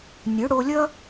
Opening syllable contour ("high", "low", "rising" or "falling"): rising